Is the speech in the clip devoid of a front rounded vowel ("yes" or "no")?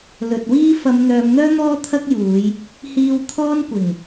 no